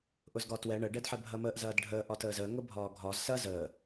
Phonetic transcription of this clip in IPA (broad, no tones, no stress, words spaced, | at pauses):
ʔʊzɡɒtwɛ ɳə ɖɛdħɛbʱɐməːʔ zɐːdɖʱəː ʔɒtəːzəː ŋʊbʱɒːɡʱɒz sɐ zəː